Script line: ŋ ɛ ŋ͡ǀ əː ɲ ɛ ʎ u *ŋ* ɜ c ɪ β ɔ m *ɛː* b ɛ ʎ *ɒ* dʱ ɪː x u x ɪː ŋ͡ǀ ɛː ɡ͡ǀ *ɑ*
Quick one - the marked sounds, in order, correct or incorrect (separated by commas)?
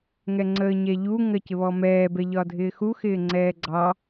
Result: correct, correct, correct, correct